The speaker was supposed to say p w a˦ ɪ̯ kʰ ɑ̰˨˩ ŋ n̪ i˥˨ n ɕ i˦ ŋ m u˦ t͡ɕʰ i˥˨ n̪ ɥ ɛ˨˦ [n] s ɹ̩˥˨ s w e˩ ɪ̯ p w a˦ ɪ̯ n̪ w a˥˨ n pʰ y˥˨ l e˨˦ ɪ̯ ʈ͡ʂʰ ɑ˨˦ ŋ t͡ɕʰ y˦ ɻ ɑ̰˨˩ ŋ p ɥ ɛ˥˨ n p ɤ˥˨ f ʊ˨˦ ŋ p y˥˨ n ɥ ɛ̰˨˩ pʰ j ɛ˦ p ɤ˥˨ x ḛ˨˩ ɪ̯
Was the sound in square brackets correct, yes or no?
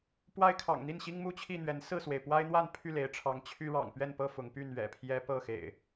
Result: yes